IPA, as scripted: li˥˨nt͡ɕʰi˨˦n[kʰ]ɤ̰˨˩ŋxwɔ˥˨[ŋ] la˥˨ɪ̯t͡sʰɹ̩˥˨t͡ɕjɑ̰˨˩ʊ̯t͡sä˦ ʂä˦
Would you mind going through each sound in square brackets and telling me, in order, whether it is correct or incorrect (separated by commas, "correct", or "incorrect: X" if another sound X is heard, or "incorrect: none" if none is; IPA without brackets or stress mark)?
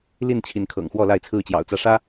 correct, incorrect: none